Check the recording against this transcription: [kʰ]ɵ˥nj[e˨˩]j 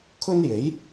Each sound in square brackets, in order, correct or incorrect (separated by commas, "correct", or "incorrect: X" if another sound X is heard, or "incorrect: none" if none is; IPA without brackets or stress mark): correct, incorrect: e˨˥